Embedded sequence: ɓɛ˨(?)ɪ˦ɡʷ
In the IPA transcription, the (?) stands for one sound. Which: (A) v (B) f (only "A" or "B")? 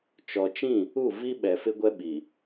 B